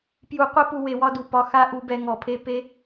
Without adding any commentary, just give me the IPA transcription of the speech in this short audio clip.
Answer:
p j u˨ qʷ ɛ˦ p u˧ w e˨ w ɒ˦ d u˨ p ɒ˧ x a˦ ʔ u˧ b ɛ˧ ŋ ɔ˨ pʰ e˦ p e˦

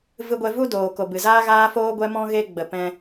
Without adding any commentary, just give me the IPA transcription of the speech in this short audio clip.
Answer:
v ɨ˧ ɡʷ ɛ˧ v u˦ d oː˨ k o˨ b ɨ˨ z aː˦ ɣ aː˦ f oː˦ ɡʷ ɛ˧ m ɔ̃˧ ɣ e˧ ɡ͡b ə˨ p ɛ̃˧

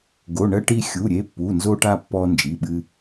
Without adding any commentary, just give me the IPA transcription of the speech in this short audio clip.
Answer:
ɡ o˩˧˩ ɳ ɜ˧ ʈ i˧ xʲ u˩˧˩ ɾʲ e˩˧˩ pː u˩˧˩ n z o˧ ʈ a˧ pː ɔ˧ n d͡ʒ i˩˧˩ ɓ ɨ˧

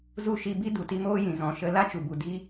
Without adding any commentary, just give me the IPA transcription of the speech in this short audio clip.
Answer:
z u˦˨ ʃ i˧ b i˦ d u˨ t i˧ m oː˦ j ĩ˨ z ɔ̃˨ ʃ ə˧ l a˦ t͡ʃ u˨ b u˨ d i˦

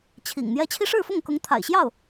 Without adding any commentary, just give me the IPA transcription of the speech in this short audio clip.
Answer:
t͡ɕʰ ḭ˨˩ ŋ n̪ j ɛ˥ t͡ɕʰ i˥ ʂ ɻ̩˥˧ f ʊ˥˩ ŋ k ʊ˧˥ ŋ t̪ʰ a̰˨˩ ɪ̯ ɕ j ɑ˥˩ ʊ̯

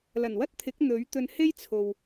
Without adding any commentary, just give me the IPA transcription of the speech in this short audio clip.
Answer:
l ɐ˨˩ n w ɐ˥ t̚ t̪ʰ ɪ˨˥ k̚ n̪ ɵ˨˥ ɥ t̪ ɵ˧ n h e˥ j t͡sʰ o˨ w

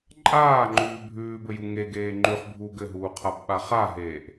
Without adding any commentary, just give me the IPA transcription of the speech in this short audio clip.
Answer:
ǃʼ aː ŋ͡ǃ ʉː bʱ ʉː b ɘ j u ŋ e ɡ eː ŋ͡ǃ ʉ χ bʱ uː ɡ ɘ ɦ uː qʰ a b ɓ a χ a ɦ eː ʔ

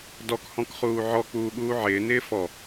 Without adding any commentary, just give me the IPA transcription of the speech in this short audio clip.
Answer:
d ɔ k h ɔ̃ k χ uː ʕ ɔ k͡p uː ɠ uː ʕ ɪː n ɪː f ɔ

